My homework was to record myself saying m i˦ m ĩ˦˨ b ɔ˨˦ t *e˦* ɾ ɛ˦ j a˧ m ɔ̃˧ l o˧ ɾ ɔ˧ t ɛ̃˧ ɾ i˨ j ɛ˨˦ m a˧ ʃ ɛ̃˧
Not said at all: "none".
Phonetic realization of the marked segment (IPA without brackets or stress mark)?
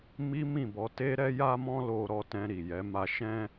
e˦